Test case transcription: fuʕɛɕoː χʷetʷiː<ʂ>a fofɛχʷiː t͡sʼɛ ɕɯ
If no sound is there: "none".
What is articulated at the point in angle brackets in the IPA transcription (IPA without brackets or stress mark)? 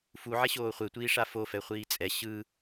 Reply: ʂ